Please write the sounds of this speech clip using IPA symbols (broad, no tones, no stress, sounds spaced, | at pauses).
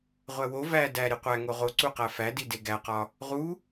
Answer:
ʁʷ æ w o v æ d æ ɾ i qʷ æ ŋ o ʁ o ǀ u q æ f æ d i d e ɡ æ q ɒ | ʁ u